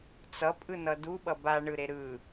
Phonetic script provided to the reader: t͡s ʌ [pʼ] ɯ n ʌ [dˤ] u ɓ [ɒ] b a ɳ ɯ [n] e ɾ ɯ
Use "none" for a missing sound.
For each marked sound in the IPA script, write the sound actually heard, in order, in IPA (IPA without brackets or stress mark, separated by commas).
pʼ, d, ʌ, ɾ